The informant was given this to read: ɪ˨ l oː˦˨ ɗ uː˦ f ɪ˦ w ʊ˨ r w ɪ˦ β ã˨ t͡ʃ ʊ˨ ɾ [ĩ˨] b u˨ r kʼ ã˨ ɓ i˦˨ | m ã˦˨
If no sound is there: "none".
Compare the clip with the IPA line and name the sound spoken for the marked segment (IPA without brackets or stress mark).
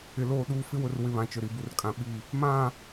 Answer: i˨